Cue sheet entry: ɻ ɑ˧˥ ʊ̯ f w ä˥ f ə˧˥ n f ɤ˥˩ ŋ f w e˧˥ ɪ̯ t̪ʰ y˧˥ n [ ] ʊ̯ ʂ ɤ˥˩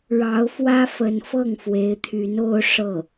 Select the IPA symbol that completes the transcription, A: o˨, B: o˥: B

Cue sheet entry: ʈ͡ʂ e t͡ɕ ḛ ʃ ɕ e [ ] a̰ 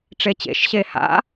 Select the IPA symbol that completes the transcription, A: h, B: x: A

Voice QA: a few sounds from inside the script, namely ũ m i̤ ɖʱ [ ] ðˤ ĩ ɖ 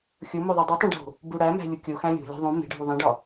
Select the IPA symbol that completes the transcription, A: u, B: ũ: A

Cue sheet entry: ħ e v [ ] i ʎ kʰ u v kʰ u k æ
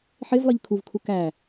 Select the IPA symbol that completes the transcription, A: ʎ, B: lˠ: B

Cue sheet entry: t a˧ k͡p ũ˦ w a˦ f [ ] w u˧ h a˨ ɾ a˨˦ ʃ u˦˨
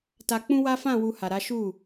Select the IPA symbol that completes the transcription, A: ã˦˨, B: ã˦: A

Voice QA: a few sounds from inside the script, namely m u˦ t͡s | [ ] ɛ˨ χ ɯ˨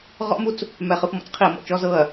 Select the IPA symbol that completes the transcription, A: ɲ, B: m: B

